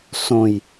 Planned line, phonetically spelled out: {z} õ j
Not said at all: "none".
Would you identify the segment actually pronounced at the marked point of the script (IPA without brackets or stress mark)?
s